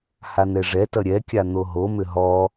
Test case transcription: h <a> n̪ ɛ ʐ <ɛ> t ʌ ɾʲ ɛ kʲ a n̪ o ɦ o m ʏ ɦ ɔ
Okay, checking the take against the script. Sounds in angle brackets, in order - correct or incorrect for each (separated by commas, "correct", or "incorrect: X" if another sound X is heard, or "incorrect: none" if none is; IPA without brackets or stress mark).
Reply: correct, correct